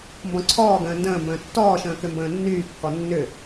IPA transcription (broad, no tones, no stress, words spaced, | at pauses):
mbɔ̃ǀʰɔːɡə̃ː ndə̃ːmbə̃ː tːɔːʃə̃ː kʏmbə̃ːnːyːkːɔ nːʏ